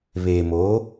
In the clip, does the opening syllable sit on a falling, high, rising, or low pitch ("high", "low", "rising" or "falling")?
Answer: low